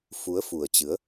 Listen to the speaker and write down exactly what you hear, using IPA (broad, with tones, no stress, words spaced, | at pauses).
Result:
fu˨˦ə̯fu˨˩ə̯t͡ɕɨ˨˦ə̯